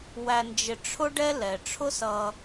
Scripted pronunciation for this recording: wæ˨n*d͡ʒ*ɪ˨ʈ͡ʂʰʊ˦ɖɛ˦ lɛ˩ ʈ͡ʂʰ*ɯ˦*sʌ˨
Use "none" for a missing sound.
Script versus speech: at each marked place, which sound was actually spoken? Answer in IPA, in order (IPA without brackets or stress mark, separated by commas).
d͡ʒ, ʊ˦